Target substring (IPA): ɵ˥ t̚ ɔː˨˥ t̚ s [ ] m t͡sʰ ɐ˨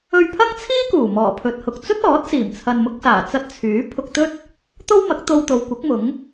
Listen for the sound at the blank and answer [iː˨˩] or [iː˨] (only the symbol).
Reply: iː˨˩